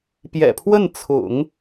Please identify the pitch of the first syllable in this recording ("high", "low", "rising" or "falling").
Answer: low